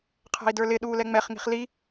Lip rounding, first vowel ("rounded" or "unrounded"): unrounded